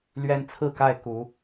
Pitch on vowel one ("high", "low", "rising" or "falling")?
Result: high